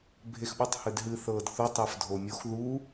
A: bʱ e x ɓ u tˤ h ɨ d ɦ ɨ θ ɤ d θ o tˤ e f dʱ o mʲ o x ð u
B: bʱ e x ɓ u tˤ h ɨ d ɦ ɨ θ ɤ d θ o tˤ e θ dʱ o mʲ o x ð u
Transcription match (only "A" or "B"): A